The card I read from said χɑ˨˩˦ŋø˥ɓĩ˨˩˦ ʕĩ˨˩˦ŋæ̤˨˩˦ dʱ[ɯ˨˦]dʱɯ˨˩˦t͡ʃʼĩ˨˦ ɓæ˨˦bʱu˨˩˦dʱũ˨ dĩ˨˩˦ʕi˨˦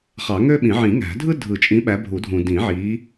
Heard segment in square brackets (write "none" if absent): ɯ˥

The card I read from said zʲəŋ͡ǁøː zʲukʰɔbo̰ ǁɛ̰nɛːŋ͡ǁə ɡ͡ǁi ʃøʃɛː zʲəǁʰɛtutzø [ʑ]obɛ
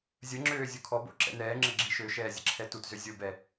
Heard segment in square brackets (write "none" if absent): zʲ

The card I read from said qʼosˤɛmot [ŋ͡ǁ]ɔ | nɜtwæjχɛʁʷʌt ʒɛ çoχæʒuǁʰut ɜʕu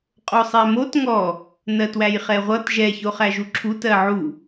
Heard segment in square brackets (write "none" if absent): ŋ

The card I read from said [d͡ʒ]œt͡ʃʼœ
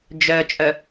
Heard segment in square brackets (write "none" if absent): d͡ʒ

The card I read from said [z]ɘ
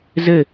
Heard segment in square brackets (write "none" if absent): z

